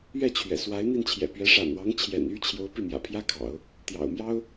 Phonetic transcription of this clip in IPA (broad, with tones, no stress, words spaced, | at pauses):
ɥɛ˥˩t͡ɕʰɥɛ̰˨˩swa˧˥ɪ̯ n̪i˥˩nt͡ɕʰjɛ̰˨˩pɥɛ˧˥ ʂa̰˨˩nwɑ˧˥ŋt͡ɕʰjɛ̰˨˩n y˥ t͡ɕʰjo˧˥ʊ̯pi˥˩ mjä̰˨˩pʰjä˥kʰɑ̰˨˩˦ʊ̯ | t̪jɑ̰˨˩ʊ̯mjɑ˥ʊ̯